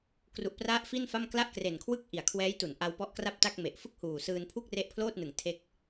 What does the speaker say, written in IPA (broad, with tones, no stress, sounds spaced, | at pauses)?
k r u˨˩ ʔ p r a˦˥ ʔ f i˥˩ n f a˥˩ m k l a˥˩ ʔ k r e˨˩ n kʰ w ɯ˥˩ k̚ ʔ i˨˩ a̯ kʰ w ɛː˦˥ j t u˩˦ n ʔ a˧ w p ɔ˦˥ ʔ k r a˥˩ p̚ t a˥˩ k̚ m e˨˩ ʔ f ɯ˥˩ k̚ h uː˨˩ s ɯː˧ n pʰ u˥˩ k̚ r e˦˥ ʔ pʰ l oː˥˩ t̚ n ɯ˨˩ ŋ tʰ e˥˩ k̚